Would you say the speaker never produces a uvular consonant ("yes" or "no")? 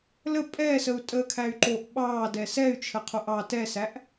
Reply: no